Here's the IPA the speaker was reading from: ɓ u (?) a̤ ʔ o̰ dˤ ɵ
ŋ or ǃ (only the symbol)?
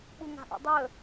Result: ŋ